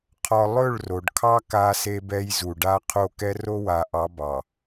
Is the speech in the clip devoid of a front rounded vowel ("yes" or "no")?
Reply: yes